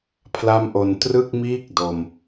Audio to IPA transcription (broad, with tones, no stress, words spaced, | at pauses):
pʰla˥˩mʔo˧n trɯ˥˩k̚miː˥˩k̚ do˧m